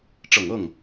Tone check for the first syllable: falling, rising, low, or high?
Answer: low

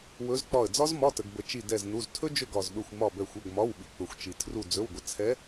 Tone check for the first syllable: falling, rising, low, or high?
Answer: rising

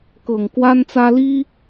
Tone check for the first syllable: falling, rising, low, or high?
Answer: low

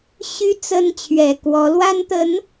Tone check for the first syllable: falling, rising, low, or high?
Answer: high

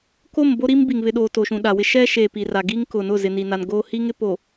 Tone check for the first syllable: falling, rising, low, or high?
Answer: falling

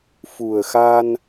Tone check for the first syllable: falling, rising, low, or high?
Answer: low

